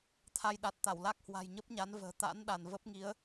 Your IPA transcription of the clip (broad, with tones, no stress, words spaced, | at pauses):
t̪ʰa˧j ɗa˨˩t̚ t̪a˧˩wla˦˥k̚hwa̤˨˩j ɲə˦˥p̚ɲa˨˦nvə̤ː˨˩ t̪a̰˧˥nɗa˧˩n və˦˥p̚ŋi˨˦ə̯